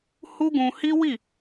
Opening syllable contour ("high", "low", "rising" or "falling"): high